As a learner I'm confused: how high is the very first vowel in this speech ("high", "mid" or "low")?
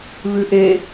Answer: high